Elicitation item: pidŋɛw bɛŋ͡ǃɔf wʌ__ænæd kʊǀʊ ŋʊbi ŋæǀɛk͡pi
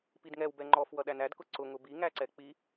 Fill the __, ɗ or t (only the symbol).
ɗ